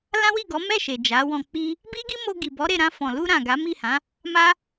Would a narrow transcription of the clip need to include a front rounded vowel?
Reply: no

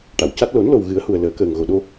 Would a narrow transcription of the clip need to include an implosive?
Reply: yes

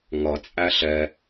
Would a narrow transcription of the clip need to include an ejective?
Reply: yes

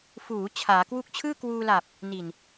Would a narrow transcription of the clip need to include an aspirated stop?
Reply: yes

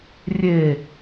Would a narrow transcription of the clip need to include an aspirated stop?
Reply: no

